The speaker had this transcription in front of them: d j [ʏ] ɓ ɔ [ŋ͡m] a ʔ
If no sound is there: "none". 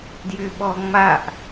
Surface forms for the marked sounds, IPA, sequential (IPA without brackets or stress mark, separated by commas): ʏ, ŋ͡m